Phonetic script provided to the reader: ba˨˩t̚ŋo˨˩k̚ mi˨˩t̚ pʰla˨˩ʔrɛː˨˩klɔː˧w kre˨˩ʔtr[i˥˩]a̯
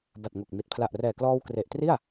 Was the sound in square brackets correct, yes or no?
yes